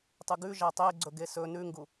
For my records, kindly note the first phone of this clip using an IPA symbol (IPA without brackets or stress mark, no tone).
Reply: tˤ